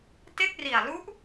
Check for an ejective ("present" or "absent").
absent